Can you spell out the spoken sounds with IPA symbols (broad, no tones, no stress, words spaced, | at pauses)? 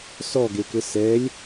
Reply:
sɔɡekɘ sɛlʲ